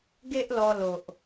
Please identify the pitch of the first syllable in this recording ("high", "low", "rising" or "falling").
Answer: high